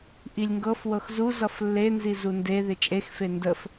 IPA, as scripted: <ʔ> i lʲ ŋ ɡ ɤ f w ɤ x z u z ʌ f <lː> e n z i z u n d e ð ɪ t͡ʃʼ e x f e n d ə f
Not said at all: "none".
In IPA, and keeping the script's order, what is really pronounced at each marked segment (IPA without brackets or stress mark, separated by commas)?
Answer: ʔ, lː